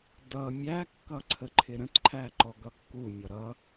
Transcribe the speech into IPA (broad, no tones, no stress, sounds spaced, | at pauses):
d ʌ mʲ æ kː ʌ ǀʰ ə ǃʰ ɪ ɾ ə̃ t ǃʰ æ ǃ ɔ ɡ ʌ kː u mʲ ʌ ɾ ʌ